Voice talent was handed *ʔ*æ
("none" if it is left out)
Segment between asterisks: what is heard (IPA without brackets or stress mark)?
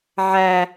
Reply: ʕ